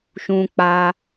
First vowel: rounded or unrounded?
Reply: rounded